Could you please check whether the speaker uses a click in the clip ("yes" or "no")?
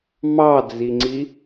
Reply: yes